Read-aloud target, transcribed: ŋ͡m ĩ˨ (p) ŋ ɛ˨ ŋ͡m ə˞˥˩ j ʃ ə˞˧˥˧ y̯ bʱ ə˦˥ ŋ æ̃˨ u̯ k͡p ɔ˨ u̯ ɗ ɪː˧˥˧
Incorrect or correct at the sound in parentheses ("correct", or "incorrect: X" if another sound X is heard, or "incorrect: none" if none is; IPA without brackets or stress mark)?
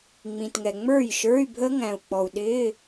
incorrect: t